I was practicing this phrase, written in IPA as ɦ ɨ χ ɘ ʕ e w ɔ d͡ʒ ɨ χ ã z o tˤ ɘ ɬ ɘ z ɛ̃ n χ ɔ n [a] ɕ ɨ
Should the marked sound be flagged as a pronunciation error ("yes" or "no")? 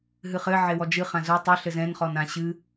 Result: yes